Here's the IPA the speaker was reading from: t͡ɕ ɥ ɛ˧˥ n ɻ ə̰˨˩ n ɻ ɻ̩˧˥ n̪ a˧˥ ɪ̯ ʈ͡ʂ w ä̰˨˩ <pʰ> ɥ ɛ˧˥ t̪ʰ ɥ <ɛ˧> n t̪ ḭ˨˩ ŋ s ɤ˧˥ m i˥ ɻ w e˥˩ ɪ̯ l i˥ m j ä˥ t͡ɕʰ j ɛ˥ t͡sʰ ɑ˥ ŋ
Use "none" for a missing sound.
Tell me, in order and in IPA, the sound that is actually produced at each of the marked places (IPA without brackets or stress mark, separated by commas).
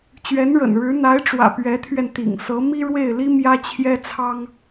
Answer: p, ɛ˧